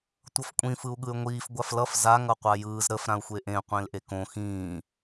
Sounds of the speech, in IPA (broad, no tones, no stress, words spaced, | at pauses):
tʷʌfkʷʼĩ fɯu̯ɠɯy̯ŋʷiːf ɡʷaflʌf za ŋʌqʷajɯːz ɾəf ɾãu̯xʷeʔẽ qʷẽlʔekõ xĩː